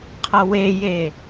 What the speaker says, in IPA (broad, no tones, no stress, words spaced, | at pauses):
qʰʌweje